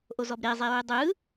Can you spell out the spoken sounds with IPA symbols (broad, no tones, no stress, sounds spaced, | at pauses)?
ʔ o z ɔ b ɾ e zˤ e ɹ ɯ dˤ ɯ